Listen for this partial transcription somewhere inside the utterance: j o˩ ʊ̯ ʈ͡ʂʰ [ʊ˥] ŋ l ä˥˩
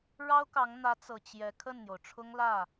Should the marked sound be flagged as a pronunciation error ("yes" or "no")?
no